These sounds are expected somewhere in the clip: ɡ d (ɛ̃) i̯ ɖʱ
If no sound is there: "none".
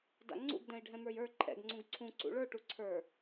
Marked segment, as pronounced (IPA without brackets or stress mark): ɛ̃